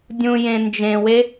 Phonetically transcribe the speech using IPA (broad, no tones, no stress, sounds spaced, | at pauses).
dʲ ũ j ẽ n d͡ʒ ẽ w e